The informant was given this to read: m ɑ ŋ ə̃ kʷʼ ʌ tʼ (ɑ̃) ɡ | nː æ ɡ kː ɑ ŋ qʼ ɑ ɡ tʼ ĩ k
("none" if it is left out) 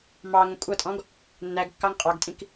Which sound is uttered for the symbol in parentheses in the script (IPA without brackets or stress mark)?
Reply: ɔ̃